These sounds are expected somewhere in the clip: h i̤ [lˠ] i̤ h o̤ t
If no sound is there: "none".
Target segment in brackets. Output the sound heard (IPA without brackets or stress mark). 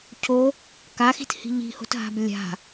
ʎ